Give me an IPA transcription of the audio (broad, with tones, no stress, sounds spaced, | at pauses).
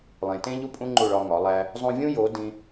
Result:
lˠ ẽ˨ t ẽ˦ ʎ u˦ pʼ ũ˦ ŋ͡ǃ u˦˨ ɭ ɒ˧ ŋ ɒ˨˦ lˠ æ˦ | zˤ ũ˧ vʲ ũ˦ j o˨˦ d ĩ˧